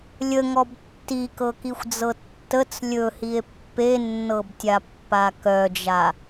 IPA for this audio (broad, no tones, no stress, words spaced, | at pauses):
lʲəŋɔb tːikɤkixʷd͡zɤ tːət͡s lʲɵhie̯ pːenːɤbtʲapːa kœd͡ʒa